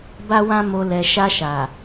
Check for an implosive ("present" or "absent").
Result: absent